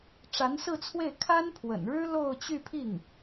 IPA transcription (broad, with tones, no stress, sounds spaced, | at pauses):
ʈ͡ʂ a˧˥ n s ɹ̩˥˧ t͡sʰ w e˥˩ ɪ̯ kʰ a˥ n pʰ w ə̰˨˩ n ɻ ɻ̩˥ l o˥˧ ʊ̯ t͡ɕ y˥˧ pʰ i˥˩ ŋ